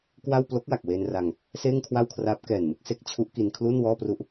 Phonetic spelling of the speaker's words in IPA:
k w a˥˩ w p l o˦˥ k̚ w a˨˩ k̚ w eː˧ n r a˧ ŋ | s eː˥˩ ŋ kʰ w a˥˩ w kʰ r aː˦˥ p̚ k ɛː˨˩ n m ɯ˥˩ k̚ s e˦˥ k̚ t͡ɕʰ u˦˥ ʔ k i˧ n kʰ l u˥˩ n w ɔː˥˩ p r u˥˩ ʔ

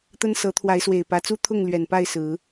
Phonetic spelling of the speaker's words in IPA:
t̪ ə˦ n s ɤ˨˦ t̪ʰ w a˨˦ ɪ̯ s w e˨˩ ɪ̯ p ä˨˦ t͡s u˦ t̪ʰ ʊ˥˨ ŋ l ɥ ɛ˨˩ n p a˥˨ ɪ̯ s ɹ̩˨˦

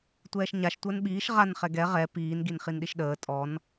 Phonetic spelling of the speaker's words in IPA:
tʷ ɛː ʃ ɲ a ʃ tʷ əː n ɓ iː ʃ ʁ a n χ ɛ ɡ ɛ ʁ ɛ p iː n ɡ i n χ i n ɗ i ʃ ɗ əː tʼ ɔ n

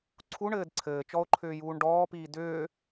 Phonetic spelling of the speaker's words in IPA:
ǀʰ u ɳ ɘː d ǀʰ ɘː t͡ʃ ɔ o̯ ǃʰ ʏː j uː ɳ ɖ ɔː p iː d ʏː

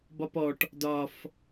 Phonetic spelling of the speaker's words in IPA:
b ɒ p ɔ ʈ | d ɒ f

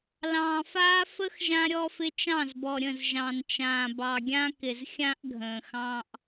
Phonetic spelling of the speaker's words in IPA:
l ɑ̃ː˨ f aː˦ f ə˦ x ʒ ã˦ ɾʲ ɔ˦ f ɪ˦ t͡ʃ ɑ̃˦˨ z b ɔ˨ ɾʲ ə̃˦˨ z ʒ ɑ̃˨ n t͡ʃ ãː˨ b ɑ˨ ɡʲ ã˦ k ɪ˨ z xʲ ã˦ ʔ ɡʱ ə̃ː˨ x ɑ̃ː˦ ʔ

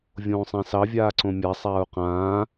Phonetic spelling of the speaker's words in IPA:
vʲ õː sˤ ã s ɑ vʲ aː ǀ õ mʲ a sˤ aː u̯ q ãː

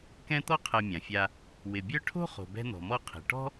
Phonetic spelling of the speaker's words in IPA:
k ɛ̃˦ t̪ ɔ˦ qʰ ɛ˨ mʲ ã˩ fʲ a˨ | w ɪ˩ bʲ œ˦ ʈʰ o̤˥ χ o̤˩ b ɛ̤˦ n̪ ɔ̤˩ m ɔ˦ qʰ i̤˩ ʈ ɔ̤˥

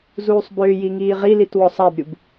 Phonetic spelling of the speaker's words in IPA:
z uː sˤ b ʏː j i ŋ iː ʁ i l i t w ɔ sˤ a b ɾʲ u b

